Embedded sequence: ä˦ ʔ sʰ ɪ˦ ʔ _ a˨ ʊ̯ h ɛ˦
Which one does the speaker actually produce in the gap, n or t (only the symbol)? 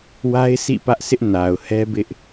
n